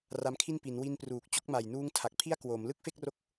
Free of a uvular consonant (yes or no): yes